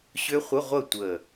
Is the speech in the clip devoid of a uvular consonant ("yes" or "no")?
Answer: no